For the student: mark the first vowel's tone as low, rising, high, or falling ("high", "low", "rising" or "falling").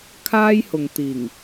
high